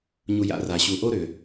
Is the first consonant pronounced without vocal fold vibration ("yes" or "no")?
no